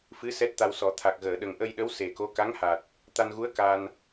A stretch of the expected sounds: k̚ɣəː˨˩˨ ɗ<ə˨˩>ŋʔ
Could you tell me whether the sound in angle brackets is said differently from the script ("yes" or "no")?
no